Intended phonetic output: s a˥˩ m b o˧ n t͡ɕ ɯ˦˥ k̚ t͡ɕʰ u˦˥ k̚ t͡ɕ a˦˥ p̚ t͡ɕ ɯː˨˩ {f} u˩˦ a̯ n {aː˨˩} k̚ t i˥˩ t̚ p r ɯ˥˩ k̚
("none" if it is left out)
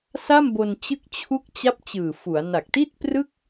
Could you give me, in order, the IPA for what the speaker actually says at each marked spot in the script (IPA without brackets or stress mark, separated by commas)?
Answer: f, a˨˩